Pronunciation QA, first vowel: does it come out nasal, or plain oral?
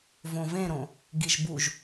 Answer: nasal